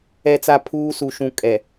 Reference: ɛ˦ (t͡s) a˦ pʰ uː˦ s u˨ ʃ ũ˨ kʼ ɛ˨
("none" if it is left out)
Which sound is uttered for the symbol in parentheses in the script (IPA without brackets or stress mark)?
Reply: t͡s